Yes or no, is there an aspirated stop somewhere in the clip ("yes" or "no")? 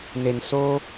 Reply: no